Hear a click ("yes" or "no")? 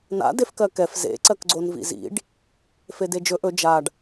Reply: yes